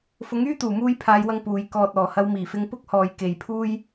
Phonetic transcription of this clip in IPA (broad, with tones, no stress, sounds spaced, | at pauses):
f ʊ˨˥ ŋ yː˥ t̪ uː˨˩ m uː˧ j pʰ aː˨˧ j w ɐ˧ ŋ p uː˨ j k ɔː˨ t̚ ɔː˨˩ h ɐ˨˧ w m iː˨˩ f ɪ˧ ŋ p ʊ˥ k̚ h ɔː˨ j k e˨ j pʰ uː˥ j